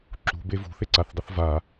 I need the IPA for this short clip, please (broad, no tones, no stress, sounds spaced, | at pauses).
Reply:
ǁ ṳ b e v ṳ θ e ǀ a θ dˤ ə θ v a